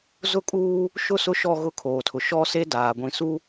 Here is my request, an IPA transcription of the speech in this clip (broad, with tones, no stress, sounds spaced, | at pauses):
z ʊ˦ kʼ uː˦ | ʃ ʊ˦˨ s ʊ˦ ʃ ɔ˦˨ ɣ ʊ˦˨ kʰ oː˨ tʰ ʊ˨ ʃ ɔ˦ s e˦ d aː˨ ɡʷ ĩ˨ s u˦